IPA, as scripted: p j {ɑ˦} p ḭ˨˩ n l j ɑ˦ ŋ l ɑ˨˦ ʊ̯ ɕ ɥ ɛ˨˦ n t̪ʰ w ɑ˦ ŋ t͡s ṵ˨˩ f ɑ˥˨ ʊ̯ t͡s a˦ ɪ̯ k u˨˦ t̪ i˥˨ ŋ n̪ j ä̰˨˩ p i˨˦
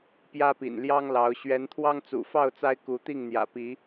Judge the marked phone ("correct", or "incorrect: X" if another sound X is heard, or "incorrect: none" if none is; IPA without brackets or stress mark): incorrect: ä˦